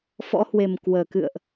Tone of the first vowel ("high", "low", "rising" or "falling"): rising